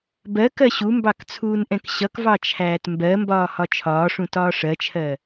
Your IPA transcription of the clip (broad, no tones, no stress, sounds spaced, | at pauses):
b ɜ k ɜ ɕ u m b ɑ k t͡sʰ uː n ʔ ɛ̃ k ɕ ʌ k v ɑ t͡ʃʰ æː t m b ɜ m b ɒː h ɒ t͡ʃʰ ɒː ʂ ũ t ɒː ʂ ɜ t͡ʃʰ ɜ